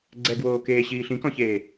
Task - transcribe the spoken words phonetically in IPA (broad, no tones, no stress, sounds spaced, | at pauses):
ɡ͡ǀ ɛ ɡ w oː k eː ɕ iː ɬ ĩ k ɔ̃ ç eː